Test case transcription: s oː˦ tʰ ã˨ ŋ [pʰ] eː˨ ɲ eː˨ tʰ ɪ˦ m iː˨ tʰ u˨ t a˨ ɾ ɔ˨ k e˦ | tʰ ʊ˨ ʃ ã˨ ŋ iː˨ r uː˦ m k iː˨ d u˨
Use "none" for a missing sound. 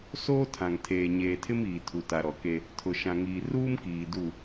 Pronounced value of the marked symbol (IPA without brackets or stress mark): tʰ